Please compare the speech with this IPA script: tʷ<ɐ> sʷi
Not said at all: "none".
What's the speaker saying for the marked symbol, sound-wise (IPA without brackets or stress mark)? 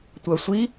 ɐ